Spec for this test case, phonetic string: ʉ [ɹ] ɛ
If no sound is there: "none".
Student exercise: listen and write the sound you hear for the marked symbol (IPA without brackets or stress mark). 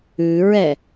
ɹ